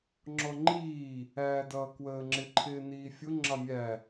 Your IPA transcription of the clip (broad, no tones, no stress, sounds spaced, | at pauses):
ŋ͡ǁ ɔ ŋ͡ǃ iː | æː d ʌː k w əː ŋ͡ǁ ɪ ǃʰ ɪː n iː fʲ ʊ ŋ͡ǁ ɑ mʲ æ